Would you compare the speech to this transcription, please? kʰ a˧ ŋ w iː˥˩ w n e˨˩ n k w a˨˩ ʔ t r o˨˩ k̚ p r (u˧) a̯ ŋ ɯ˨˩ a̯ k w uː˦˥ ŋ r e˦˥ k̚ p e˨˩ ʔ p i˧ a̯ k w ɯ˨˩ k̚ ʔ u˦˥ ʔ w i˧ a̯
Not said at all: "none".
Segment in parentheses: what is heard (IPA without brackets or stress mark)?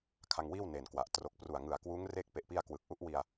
u˨˩